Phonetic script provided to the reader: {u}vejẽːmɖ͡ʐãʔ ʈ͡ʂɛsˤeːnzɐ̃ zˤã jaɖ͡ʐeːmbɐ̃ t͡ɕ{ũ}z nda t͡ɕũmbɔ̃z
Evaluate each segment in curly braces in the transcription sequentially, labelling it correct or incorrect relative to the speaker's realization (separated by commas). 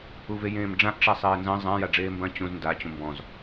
correct, correct